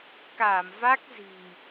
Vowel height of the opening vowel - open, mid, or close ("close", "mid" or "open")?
open